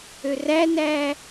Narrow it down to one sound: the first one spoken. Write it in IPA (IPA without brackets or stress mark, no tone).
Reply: ø